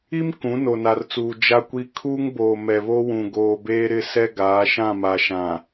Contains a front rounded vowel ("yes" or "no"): no